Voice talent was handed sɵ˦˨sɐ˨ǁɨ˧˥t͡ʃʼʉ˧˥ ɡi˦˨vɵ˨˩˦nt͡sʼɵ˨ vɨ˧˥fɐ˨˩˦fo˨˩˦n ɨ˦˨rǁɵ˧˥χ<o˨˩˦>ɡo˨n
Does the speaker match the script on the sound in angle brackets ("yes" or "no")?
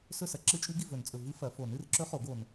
yes